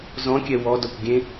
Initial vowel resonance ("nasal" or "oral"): nasal